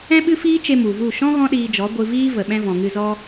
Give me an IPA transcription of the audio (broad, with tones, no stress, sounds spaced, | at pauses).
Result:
ɛ̃˦ ɓ ɨ˦ f iː˦ t͡ʃ e˧ m u˨ v u˦˨ ʃ ɔ̃˦ ɣ ɔ̃˦ ɗ iː˧ d͡ʒ ɔ˨˦ ɡʷ ɨ˧ v iː˦ v ə˨ ɓ ɛ̃˧ v ɔ̃˨ ŋ ɨ˧ z ɔ˦